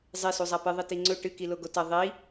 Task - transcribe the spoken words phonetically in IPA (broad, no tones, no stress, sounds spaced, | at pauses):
zˤ e s u zˤ a p ɨ ðˤ i t i ŋ͡ǀ ɵ ʈ ɨ k i l o ɡ o t ɐ ðˤ i